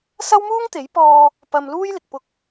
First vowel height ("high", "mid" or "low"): low